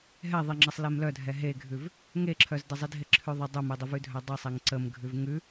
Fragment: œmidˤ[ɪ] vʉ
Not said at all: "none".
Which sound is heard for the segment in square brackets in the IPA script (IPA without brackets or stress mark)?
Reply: ɪ